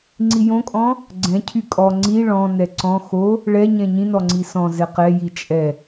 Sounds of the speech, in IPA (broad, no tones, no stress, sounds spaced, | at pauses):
ŋ͡ǀ i j õ kʼ ɔ̃ | ɡ͡ǀ ɛ̃ cʰ y kʼ ɔ ŋ͡ǀ i ɭ ɔ̃ n ɛ ǀ ɔ̃ x o | ɭ ɛ ɲ ɛ̃ ɲ ĩ n ɔ ŋ͡ǀ i s ɔ̃ z ɛ q ɛ j i t͡ʃʼ ɛ